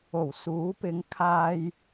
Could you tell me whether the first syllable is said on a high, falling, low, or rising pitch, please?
low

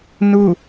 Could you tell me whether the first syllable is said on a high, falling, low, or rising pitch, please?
falling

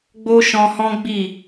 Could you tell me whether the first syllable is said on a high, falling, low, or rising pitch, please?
high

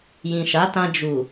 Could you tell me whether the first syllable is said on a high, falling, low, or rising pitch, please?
low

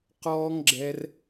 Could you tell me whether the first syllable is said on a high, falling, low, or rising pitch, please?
high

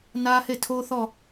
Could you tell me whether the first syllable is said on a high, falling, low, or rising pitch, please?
high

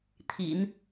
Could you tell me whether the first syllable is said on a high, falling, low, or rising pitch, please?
low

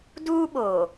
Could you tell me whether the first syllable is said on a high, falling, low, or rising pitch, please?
high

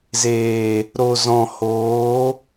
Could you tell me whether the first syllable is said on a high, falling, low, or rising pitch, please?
low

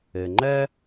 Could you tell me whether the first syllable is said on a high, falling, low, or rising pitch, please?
low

